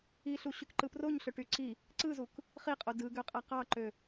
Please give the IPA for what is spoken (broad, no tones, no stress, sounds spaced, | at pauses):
i ɬ u ɕ y k ǃ ɯ p r o ɲ ɬ ø ʈ y ǀ i | ǀ ɯ z u k | χ i qʼ o d ɯ ɡ ø qʼ æ q ɑ ǃ ø